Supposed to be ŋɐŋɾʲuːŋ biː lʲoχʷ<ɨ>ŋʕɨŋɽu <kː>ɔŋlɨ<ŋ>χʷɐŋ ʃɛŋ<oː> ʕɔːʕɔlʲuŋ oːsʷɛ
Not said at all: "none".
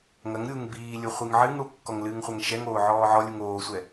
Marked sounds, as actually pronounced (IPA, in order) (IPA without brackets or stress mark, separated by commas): ɨ, kː, ŋ, oː